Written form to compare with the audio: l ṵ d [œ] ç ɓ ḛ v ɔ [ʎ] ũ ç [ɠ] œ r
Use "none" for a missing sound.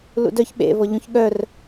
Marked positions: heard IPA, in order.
œ, ʎ, ɠ

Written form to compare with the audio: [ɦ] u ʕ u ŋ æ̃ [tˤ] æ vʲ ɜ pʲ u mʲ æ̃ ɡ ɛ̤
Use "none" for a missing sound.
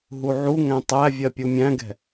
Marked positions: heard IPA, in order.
ɦ, tˤ

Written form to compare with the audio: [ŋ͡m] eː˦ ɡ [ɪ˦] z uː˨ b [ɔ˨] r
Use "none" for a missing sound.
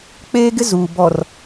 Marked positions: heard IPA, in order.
k͡p, ɪ˦, ɔ˨

